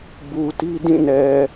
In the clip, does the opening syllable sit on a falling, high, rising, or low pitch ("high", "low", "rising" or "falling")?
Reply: low